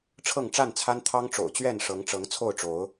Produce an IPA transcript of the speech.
ʈ͡ʂʰ ɤ˥˨ ŋ ʈ͡ʂ a˥˨ n t͡sʰ a˦ n t̪ʰ ɑ˦ ŋ ʈ͡ʂ o̰˨˩ ʊ̯ t͡ɕ ɥ ɛ˥˨ n ʂ ɤ˨˦ ŋ ʈ͡ʂ ɤ˨˦ ŋ t͡sʰ o˥˨ ʊ̯ ʈ͡ʂ o˨˦ ʊ̯

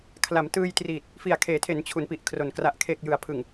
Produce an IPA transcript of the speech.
kʰ l a˩˦ m t ɯː˧ j t r iː˨˩ t̚ | f i˨˩ a̯ kʰ eː˩˦ tʰ e˩˦ n t͡ɕʰ u˩˦ n p i˨˩ ʔ kʰ r o˨˩ n k r a˨˩ ʔ kʰ e˨˩ k̚ j ɯ˩˦ a̯ pʰ ɯ˨˩ ŋ

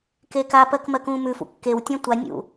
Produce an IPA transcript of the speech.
k eː k a p ɜ k m ɜ k ũː m ʉ f ṵ kː e w tʲ ã tʷ a nʲ ṵ

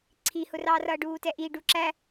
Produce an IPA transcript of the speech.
ǀʰ i h ʊ r ɑː r ʌː ɖ uː t ɛ ʔ i ɖ u ǁ æ

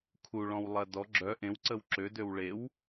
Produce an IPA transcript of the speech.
kʰ u ɭ ɔ̃ w lˠ ɐ d ɔ ɡ͡ǁ œ ʔ ẽ w ǀ ə w ǁ ø d ø w ɭ e w

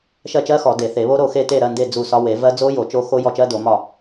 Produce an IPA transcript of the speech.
ʃ ɜ˦˨ t͡ʃ ɜ˦˥ x ɔ˨˩˦ d e˨˩˦ θ e˨˩˦ β o˦˥ ɾ o˦˨ x e˦˨ t e˦˨ ɾ ɜ˦˨ n d e˦˨ d͡z u˦˨ s ɒ˦˥ w e˨˩˦ v ɜ˦˥ d͡z o˦˥ j o˨˩˦ t͡ʃ o˦˥ x o˦˥ j ɔ˦˨ t͡ʃ ɜ˦˥ d o˨˩˦ m ɒ˦˨

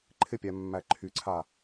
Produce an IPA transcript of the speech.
ǃʰ ɪ pʲ æ mː æ ǃʰ y ǀʰ a

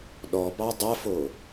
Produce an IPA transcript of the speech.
ɗ ɔ b ɑ dˤ ɐ f o

